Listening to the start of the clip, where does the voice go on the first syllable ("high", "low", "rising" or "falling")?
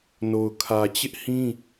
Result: low